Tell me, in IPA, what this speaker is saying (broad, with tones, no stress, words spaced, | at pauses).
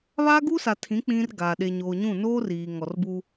βaː˦ɡu˦sa˨tʰĩ˨˦ k͡pĩ˦rɡa˨ ɗe˨ɲoː˨ɲũ˦˨ noː˦riː˨ ŋɔ˨rbuː˦